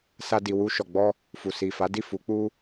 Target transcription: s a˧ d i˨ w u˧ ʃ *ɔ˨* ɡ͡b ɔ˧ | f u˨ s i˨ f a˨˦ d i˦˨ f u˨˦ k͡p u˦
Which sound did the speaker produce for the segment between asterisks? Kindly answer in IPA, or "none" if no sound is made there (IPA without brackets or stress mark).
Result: ɔ˨